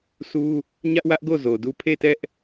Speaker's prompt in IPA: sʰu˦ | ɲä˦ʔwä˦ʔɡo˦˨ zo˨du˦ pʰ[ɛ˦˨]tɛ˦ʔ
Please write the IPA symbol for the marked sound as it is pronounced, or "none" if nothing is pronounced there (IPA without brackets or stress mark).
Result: e˦˨